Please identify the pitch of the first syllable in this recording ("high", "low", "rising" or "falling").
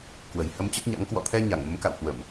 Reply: low